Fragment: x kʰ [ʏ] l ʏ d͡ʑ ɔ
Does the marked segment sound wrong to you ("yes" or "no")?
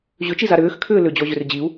yes